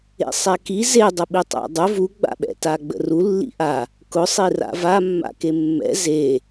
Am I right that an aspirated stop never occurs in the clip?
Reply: yes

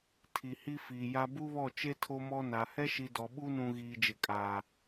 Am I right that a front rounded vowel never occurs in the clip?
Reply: yes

